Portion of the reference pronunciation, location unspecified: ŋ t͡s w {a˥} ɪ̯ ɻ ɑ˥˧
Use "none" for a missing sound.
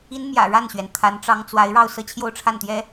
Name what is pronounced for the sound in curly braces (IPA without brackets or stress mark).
a˧˥